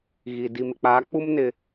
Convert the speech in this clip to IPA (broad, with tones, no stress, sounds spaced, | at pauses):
ɣ i˨ d i˨ m ɪ˨ k͡p aː˨˦ k͡p u˦ m n ɪ˨